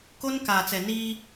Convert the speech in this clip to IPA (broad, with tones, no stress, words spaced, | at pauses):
ko˦nkaː˨t͡sɛ˨niː˦